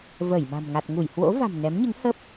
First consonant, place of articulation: labial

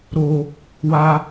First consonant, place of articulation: alveolar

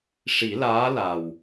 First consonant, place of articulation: retroflex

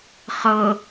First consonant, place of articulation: uvular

